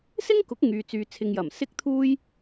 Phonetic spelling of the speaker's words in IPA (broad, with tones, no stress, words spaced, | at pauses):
sɪ˥ŋkʊ˨˥k̚ ŋyː˨ t͡syː˨t͡sʰɪ˨ŋjɐ˨˩m sɪ˥k̚t̪ʰuː˥j